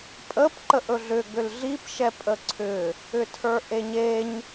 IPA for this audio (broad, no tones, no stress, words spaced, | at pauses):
pʼəp ǃəʔɵɮʏ ɡʏlɮip ʃɛpʼəǀʰʏ | ʏtʰə˞ʔeɲeɲ